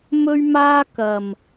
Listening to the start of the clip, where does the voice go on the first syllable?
high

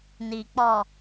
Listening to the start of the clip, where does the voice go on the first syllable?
low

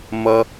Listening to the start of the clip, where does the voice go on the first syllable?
high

